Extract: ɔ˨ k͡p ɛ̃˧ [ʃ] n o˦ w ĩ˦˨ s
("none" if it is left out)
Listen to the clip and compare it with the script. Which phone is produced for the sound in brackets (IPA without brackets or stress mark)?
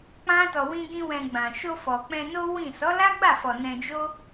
none